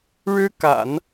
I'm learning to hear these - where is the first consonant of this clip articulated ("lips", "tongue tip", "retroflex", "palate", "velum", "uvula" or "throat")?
retroflex